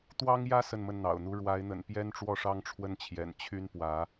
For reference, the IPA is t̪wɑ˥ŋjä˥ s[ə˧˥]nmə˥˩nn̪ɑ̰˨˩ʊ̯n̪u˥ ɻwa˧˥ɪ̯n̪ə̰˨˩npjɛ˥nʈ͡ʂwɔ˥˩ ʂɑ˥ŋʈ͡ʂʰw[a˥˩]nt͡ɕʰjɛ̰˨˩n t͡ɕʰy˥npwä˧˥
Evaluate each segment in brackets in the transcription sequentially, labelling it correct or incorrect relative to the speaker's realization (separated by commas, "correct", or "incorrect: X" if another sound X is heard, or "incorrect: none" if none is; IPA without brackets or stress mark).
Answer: incorrect: ə˥˧, incorrect: ə˥˩